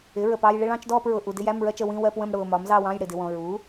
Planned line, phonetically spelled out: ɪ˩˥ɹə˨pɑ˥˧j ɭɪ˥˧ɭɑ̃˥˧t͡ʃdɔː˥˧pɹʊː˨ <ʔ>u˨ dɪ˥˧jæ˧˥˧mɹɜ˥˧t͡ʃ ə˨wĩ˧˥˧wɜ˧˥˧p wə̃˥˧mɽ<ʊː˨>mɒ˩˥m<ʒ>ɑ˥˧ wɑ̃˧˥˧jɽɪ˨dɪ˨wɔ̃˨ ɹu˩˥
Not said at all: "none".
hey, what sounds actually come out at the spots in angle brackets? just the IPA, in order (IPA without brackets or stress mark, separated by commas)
ʔ, ʊː˨, z